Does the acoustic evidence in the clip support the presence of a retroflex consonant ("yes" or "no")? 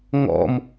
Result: no